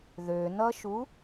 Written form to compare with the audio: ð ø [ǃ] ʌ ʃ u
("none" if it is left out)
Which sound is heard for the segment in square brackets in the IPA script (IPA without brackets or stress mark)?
n